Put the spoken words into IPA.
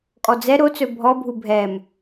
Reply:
kʼ ɔ d͡z ɛ ɾ o t͡s ɵ bʱ ɔ bʱ u bʱ ɛ m

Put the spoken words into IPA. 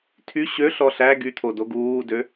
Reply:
tʰ y ɕ ø ɬ ɔ ɬ æ ɡ y t̪ʰ o d o ɡ uː d ø

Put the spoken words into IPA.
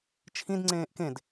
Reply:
t͡ʃʰ ĩ d ŋ͡ǀ ẽː ʔ k ẽ d

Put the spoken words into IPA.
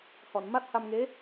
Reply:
h ɔ˨˩˨ n m a˦˥ t̚ h a˧ m ŋ e˧˥

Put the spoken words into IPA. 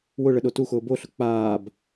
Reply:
w ʊ ɭ ə ɗ o t u x ʊː b o ɬ ʊ k͡p aː b

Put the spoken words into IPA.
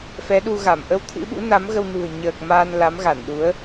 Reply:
f ɛ˨˦ ɗ u˧ ɣ a˧˩ m ʔ ə˧ w t̪ʰ ɨ̰˧˥ ɓ ṵ˧˥ n a˨˦ m ɣ ə˧ w n ṳ˨˩ ə̯ ɲ əː˨˩ k̚ m aː˧ n l a˨˦ m ɣ a˧˩ n ɗ u˨˦ ə̯

